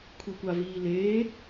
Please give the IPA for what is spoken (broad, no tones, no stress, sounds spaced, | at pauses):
kʷʰ i kʷ a v iː l eː